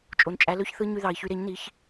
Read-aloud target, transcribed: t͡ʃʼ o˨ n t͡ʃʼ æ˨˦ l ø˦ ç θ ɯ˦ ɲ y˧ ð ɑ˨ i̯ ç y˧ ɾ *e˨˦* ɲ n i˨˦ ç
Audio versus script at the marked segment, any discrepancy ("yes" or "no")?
no